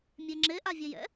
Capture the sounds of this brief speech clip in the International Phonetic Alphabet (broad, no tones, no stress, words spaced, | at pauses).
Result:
mʲeŋ͡ǁe ʔavʲɛjɛ̰